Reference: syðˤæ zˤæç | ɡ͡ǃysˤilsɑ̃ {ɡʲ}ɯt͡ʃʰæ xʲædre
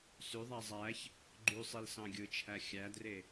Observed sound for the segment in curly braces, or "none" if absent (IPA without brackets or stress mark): ɡʲ